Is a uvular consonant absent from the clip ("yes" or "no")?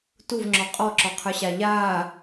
no